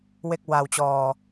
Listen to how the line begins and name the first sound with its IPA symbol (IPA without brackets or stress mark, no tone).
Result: w